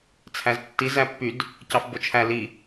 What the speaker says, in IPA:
t͡sʰ æ z tː i z æ pː y d | c ɑ f b o t͡ʃʰ æ l i

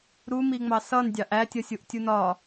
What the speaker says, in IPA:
ɾ u m i ŋ͡m ɑ s ʌ n dʲ ɑ ʔ æ tʲ ʌ sʲ u ʔ tʲ u n ɒ

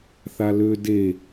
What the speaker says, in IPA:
θ a l ø d e

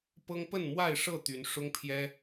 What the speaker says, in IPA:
p ɤ˦ ŋ p ə˥˨ n m w a˥˨ ɪ̯ ʂ ɤ˥˨ t̪ y˨˦ n ʂ ʊ˦ ŋ pʰ j ɛ˦

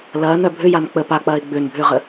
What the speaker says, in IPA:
l ɐː n œ bʱ ʏ j a n k͡p ə p a k͡p ɐː ɪ̯ ɡ͡b ʏː n bʱ ʏː ʁ ə

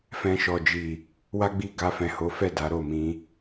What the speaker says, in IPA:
f ɛ̃˧ ʃ ɔ˨ d͡ʒ i˨ | w a˦ ɡ͡b i˦˨ ɡ a˧ f ɛ̃˨ h o˨˦ f ɛ˦˨ d a˨˦ ɾ o˦˨ m ĩ˧

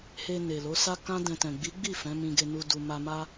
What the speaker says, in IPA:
h e˧ n e˨ l o˨˦ s a˦ k ã˦ d ɛ̃˧ t ɛ̃˨ ɡ͡b i˨˦ ɡ͡b i˦˨ f ɛ̃˨˦ m ĩ˧ ɡ e˧ n u˧ d u˨ m a˧ m a˦

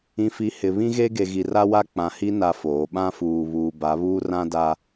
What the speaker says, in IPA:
ĩ˨ f i˨ h ɪ˨ β ĩ˦ ɣ e˦ ɡ e˨ ɣ i˨ r a˦ w a˦ k͡p ã˨ h i˦ n a˦ f oː˨˦ ɓ ã˦ f uː˨ β uː˨ b a˨˦ β uː˦ r ã˦ d a˦

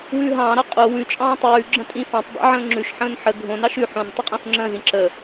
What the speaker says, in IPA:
w ʉː ɦ ɑ̃ː ɾ ɑ qʼ o w ʉ t͡ʃʼ ɑ̃ː tˤ ʉː ɡ͡ǁ ə̃ tʼ ĩ f ɑ̃ tˤ dˤ o̰ ʕ ə̃ː ŋ͡ǁ ʉ ʃ ħ ə̃ː n ħ ə ɡʱ õ n ɑ ʃ ʉ ħ õ n tˤ ʉ qʼ ə̃ː f ŋ͡ǁ ə̃ː z ĩ ǁ ə

